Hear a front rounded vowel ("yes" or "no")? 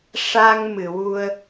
no